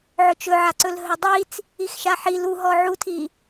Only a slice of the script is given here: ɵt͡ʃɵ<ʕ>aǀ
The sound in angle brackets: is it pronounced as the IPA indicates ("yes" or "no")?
yes